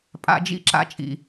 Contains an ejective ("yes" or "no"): yes